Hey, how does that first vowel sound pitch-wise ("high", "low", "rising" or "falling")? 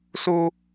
high